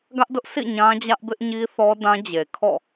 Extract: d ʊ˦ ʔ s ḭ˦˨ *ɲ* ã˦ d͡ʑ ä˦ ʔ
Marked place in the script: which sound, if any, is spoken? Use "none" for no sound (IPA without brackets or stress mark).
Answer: ɲ